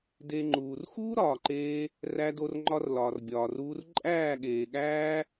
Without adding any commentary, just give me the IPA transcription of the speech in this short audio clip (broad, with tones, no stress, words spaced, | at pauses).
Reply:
de˧ŋ͡ǃuː˨r xuː˦ɾɒː˨ǃeː˧ | ræ˧do˧rŋ͡ǃɒ˧r lɒː˨rbʲɒː˨ruː˧r ǃʼæː˦˨ɠeː˨ɠæː˦